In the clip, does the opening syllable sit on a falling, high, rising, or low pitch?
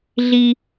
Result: high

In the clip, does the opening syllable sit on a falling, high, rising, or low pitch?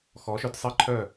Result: rising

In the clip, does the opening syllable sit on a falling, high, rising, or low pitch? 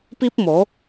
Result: high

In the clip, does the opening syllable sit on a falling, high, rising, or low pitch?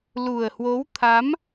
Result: low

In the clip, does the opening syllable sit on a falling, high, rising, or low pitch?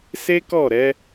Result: high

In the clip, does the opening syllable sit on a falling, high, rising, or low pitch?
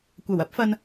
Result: low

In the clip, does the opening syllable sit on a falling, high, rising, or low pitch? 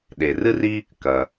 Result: low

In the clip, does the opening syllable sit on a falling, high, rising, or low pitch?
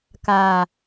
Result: low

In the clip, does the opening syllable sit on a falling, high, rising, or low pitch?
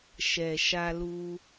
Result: low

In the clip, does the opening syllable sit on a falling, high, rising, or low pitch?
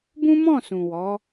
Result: high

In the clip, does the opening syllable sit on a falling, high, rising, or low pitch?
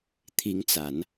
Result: rising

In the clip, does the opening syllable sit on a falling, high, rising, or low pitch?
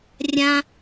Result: high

